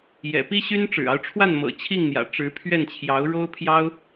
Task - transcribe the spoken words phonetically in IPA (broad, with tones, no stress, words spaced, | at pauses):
jɛ̰˨˩pi˥ɕy˥n ʈ͡ʂɻ̩˨˩ɑ˦ʊ̯ʈ͡ʂʰwa˥˩nmɤ̰˨˩ t͡ɕʰi˥˩ŋn̪jä̰˨˩ ʈ͡ʂɻ̩˧˥pʰɥɛ˥˩n t͡ɕʰjɑ˧˥ʊ̯ɻo˥ʊ̯pʰjɑ˥ʊ̯